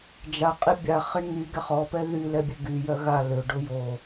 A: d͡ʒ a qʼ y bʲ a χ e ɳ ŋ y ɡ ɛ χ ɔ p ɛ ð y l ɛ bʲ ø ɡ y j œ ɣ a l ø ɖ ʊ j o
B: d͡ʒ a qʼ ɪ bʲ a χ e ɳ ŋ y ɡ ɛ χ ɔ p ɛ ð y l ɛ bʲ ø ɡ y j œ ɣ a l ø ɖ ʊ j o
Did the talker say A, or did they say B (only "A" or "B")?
B